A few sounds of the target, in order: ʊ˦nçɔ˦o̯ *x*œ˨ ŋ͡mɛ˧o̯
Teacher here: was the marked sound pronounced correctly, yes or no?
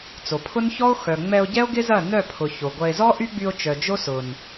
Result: yes